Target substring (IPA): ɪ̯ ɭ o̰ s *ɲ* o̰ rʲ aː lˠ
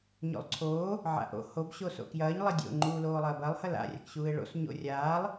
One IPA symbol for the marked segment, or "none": ɲ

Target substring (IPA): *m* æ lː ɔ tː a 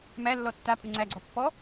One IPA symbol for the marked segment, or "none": m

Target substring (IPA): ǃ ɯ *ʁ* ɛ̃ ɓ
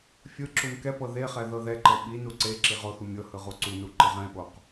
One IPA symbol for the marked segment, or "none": ʁ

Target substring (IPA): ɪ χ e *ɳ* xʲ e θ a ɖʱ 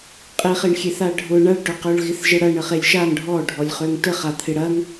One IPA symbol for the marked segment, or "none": ɳ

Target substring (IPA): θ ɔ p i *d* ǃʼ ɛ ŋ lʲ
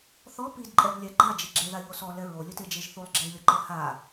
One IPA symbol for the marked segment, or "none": d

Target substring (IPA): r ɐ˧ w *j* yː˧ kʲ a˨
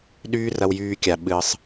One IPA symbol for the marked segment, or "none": j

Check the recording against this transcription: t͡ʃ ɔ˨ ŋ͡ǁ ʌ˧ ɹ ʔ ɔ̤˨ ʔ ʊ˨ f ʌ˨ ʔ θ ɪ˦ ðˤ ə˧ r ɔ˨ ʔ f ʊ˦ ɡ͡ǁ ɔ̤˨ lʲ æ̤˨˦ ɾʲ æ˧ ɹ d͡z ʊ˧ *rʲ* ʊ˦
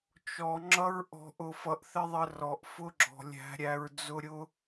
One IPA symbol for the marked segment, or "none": ɾʲ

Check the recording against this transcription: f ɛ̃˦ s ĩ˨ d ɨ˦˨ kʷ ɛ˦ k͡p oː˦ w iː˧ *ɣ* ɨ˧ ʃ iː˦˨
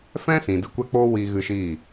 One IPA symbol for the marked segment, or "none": ɣ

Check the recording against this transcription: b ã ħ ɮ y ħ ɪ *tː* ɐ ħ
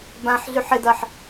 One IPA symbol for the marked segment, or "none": d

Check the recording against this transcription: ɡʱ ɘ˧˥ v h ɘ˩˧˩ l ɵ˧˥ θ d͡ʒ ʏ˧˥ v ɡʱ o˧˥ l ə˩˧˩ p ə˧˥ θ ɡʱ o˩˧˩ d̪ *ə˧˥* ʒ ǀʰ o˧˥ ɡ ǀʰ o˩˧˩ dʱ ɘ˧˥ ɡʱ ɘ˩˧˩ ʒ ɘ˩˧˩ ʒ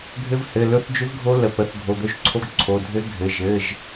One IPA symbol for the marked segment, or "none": ɵ˧˥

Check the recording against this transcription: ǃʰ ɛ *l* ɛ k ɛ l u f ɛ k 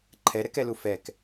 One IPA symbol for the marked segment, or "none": ɾ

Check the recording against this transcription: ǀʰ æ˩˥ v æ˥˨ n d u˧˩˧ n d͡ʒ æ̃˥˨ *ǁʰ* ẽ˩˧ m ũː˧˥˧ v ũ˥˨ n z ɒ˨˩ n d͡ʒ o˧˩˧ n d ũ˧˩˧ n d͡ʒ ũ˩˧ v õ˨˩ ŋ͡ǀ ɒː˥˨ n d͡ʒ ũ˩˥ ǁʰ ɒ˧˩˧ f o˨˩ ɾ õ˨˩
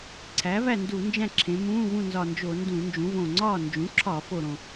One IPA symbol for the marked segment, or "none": ǁʰ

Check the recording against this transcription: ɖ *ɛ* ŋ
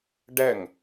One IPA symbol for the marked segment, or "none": ɛ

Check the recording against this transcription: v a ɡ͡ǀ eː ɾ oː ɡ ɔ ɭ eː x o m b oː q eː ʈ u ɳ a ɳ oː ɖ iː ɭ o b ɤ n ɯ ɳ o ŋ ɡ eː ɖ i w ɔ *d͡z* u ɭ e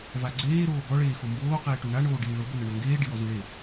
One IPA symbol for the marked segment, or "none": z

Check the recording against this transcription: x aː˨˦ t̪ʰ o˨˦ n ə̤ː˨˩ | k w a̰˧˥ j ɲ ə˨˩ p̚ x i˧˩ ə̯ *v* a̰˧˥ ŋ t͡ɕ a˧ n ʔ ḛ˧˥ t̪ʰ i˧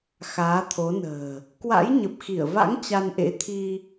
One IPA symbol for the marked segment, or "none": v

